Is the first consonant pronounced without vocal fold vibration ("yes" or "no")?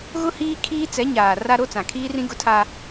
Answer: no